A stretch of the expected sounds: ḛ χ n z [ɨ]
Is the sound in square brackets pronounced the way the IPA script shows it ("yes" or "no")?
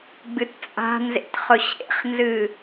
yes